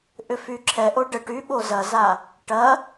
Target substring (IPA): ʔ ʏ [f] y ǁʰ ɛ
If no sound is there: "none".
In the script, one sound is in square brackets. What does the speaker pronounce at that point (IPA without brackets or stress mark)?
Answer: f